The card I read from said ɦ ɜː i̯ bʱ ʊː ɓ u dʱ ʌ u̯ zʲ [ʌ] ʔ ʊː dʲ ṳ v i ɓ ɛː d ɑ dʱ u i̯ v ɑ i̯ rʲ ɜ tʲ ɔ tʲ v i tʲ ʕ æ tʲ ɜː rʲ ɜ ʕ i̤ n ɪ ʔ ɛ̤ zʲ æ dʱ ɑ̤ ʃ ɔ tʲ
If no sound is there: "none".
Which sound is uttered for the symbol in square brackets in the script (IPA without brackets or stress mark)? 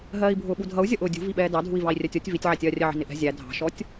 ʌ